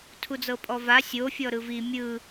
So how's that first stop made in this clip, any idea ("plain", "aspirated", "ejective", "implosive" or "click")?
aspirated